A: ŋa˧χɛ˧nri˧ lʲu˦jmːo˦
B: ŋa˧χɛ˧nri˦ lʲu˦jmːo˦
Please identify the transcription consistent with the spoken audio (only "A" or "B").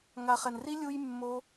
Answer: B